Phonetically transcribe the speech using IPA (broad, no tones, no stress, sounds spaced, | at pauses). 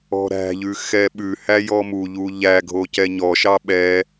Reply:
ɔ̤ ɾ æ̤ ʎ ʉ x ɛ ɓ ʉ h æ j ɔ m u ʎ u ʎ æ ɡʱ o c ɛ ɲ ɔ ʃ ɑ ɓ ɛ